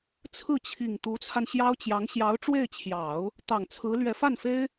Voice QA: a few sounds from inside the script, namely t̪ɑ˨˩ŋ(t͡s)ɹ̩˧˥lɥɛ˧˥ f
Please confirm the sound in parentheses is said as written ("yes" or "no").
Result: no